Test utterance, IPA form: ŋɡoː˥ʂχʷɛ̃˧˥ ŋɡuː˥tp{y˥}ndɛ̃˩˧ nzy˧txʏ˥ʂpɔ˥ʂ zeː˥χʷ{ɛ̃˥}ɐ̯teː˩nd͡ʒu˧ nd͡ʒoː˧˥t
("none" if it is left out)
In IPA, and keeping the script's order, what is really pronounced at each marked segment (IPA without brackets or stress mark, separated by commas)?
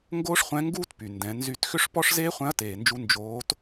y˩, ɛ̃˧˥